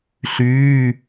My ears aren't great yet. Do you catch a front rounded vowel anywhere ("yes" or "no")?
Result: yes